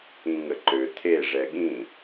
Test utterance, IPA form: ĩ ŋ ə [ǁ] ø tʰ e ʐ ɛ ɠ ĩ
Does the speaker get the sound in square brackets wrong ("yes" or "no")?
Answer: yes